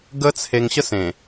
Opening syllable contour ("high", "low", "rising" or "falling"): high